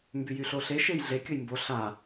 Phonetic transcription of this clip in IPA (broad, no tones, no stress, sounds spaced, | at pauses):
m b y j y ɬ o ɬ e ʃ e j ɮ e kʲ o j m b o ɬ a